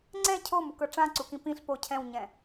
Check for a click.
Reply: present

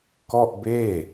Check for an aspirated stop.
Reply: absent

